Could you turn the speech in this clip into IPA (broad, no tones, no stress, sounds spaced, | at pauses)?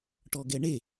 ʈ ɔ ɡ ɛ ɳ e